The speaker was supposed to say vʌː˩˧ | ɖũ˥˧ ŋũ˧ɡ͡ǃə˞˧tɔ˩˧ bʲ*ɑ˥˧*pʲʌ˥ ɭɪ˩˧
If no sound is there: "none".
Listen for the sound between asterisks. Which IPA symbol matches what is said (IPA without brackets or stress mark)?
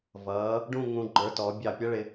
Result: ɑ˧˩